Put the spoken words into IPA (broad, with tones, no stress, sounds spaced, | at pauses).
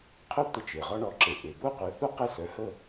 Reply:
qʰ œ˥ t̪ ə˧ t͡ʃ e˩ ʁ ɔ˧ ɳ ɔ˩˥ ǁ e˩ ʔ e˩ b o˥˩ qʷ œ˩˥ θ o˥ q e˥˩ s œ˩˥ h ə˥˩